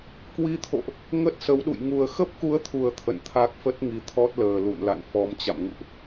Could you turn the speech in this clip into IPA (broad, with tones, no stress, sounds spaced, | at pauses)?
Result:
k w i˧ t̪ʰ o̰˧˨ ʔ | ŋ ə˦˥ t̚ s ə˨˦ w ɗ ṵ˧˨ j ŋ u˨˩ ə̯ x ə˦˥ p̚ k u˨˦ ə̯ t̪ʰ u˨˩ ə̯ t̪ʰ ə̰˧˨ n t̪ʰ a˦˥ k̚ f ə˦˥ t̚ ŋ i˨˦ t̪ʰ ɔ˦˥ t̚ l əː˨˩ l ṵ˧˨ n l a̰˧˨ n f ɔ˨˦ m t͡ɕ a̰˧˨ m ŋ ṵ˧˨ ʔ